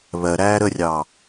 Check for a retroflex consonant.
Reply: absent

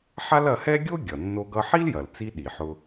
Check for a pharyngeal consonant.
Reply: present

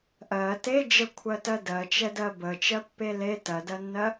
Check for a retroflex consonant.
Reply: absent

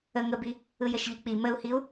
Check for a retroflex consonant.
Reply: absent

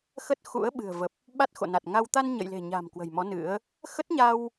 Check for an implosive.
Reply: present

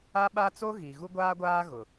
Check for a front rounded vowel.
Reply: absent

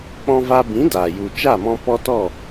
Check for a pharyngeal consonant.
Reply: absent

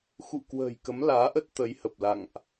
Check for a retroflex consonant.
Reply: absent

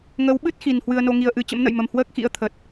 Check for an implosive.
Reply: present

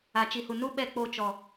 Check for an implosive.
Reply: present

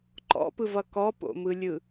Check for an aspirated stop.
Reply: absent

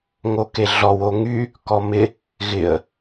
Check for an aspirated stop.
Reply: absent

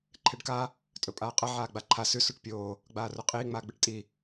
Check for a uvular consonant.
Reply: present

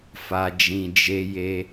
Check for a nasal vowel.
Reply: present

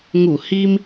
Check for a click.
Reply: absent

